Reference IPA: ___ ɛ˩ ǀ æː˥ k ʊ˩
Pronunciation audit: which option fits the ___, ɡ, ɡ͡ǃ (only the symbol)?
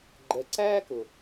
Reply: ɡ͡ǃ